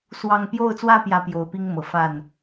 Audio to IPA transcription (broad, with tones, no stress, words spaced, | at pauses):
swɑ˥˧ŋ pjo˥˧ʊ̯t͡swä˥˧ pjä˥˩pjo˧˥ʊ̯pi˥ŋ mɤ˨˩fa˥˩n